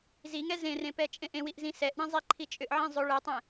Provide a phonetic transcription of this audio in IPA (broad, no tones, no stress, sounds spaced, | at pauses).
z i ŋ ɛ z ẽ r ẽ p ɛ t͡ʃʼ ẽ ʔ ẽ w i ʔ z ĩ s ɛ ʔ ɳ ĩ zˤ i ǃʰ i t͡ʃʼ ʏ ʔ ʕ ẽ zˤ ʏ ɭ ɛ tˤ ɛ̃